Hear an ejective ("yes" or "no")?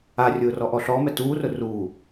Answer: no